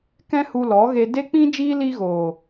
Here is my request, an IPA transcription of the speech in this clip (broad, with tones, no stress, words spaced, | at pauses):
kɛ̃˦hu˧lɔ˨˦ɣe˧ de˦k͡pĩ˦ d͡ʒiː˦ li˧ɣoː˨